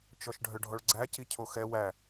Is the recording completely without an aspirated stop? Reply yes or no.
no